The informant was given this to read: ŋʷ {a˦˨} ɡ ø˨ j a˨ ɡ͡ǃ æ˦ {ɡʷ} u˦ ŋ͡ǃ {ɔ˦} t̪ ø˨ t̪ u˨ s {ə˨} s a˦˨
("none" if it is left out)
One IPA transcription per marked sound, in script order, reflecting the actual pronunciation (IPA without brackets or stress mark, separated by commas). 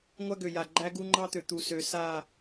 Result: a˦, ɡ, ɑ˦, ø˨